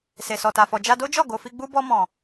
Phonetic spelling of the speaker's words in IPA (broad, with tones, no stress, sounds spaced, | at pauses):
s e˨ s ɔ˨ t a˨ f ɔ˨ d͡ʒ a˧ d o˦ d͡ʒ ɔ˦˨ ɡ o˨ f i˧ ɡ͡b u˧ b ɔ˧ m ɔ̃˨